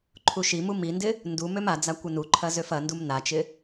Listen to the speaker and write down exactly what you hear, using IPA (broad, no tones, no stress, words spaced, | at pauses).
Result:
ǃʰuʃimu mindɪ | ndu mømad͡za kʷɪnuǃʰɐ zøfɐndum nat͡ʃɪ